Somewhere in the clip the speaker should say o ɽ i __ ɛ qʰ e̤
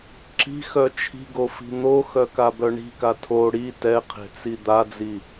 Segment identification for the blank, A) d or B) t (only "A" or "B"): B